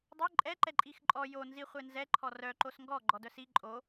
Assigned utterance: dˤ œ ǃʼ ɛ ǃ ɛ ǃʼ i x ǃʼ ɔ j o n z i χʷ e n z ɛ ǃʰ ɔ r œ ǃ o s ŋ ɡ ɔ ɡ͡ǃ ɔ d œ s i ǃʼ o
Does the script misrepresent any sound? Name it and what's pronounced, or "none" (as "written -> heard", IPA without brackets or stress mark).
none